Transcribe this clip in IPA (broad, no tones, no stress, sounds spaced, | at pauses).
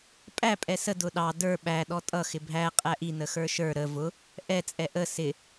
pʼ æ pʼ ɛ s ə d ʊ ɗ ɑ d ə˞ ɓ æ ɗ ɔ tʼ ʌ x ɪ bʱ æ qʼ æ ʔ i n ə x ə˞ ʃ ə˞ ɾ ə v ʊ | ʔ ɛ t͡sʼ ɛ ʔ ə s ɪ